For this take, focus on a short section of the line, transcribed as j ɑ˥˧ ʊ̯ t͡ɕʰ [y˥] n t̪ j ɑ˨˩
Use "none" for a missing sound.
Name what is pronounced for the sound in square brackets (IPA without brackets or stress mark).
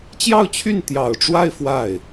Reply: y˥˩